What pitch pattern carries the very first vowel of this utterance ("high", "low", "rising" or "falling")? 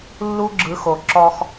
high